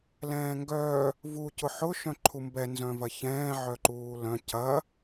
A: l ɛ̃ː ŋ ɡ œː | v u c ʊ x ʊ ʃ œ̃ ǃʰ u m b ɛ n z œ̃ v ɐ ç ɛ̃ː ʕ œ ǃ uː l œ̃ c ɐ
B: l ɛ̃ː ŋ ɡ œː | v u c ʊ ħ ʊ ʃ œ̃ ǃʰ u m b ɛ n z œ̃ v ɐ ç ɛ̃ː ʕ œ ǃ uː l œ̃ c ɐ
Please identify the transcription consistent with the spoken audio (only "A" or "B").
B